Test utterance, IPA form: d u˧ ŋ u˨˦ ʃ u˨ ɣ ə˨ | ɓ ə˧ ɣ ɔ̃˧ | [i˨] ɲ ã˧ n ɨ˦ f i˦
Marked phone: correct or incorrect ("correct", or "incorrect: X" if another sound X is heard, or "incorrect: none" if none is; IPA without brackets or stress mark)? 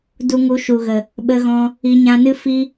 correct